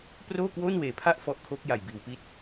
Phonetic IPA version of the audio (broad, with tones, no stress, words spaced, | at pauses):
proː˥˩kwoː˥˩nweː˨˩pʰa˥˩ʔ fɔ˦˥ʔkʰoː˦˥k̚ ja˨˩jbiː˩˦wpi˦˥t̚